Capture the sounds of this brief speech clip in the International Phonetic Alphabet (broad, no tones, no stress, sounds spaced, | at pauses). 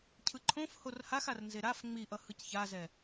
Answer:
cʰ ɯ ǃʰ õ f h o r h a x a r n z e ɾ a f ŋ͡m i ʔ ʌ h ɯ c ç a z ɛ